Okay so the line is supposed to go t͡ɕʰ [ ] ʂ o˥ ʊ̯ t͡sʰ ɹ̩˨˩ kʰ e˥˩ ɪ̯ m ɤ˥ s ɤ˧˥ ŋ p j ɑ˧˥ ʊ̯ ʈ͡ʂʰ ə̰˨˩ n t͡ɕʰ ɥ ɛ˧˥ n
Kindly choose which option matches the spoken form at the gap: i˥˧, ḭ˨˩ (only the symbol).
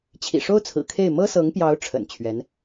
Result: ḭ˨˩